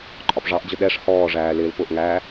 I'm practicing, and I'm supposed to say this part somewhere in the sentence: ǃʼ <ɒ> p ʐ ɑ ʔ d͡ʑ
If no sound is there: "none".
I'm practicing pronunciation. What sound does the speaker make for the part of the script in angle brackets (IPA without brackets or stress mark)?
ɒ